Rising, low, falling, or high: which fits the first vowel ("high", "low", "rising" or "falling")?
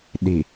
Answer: low